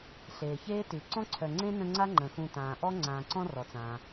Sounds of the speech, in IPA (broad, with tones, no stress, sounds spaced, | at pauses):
ɬ eː˩ ç eː˥ t ʉ˩ ǀ ɔ̃˥ ǀʰ œ˨ ŋ͡ǀ ẽ˥ n ə̃˦ ŋ͡ǀ a˥ ŋ͡ǃ ə̃˩ x ũ˨ t ãː˩ ʔ ɔ˥ ŋ͡ǀ ãː˨ ǀ ɔ̃˥ r ɔ˩ t͡s ãː˩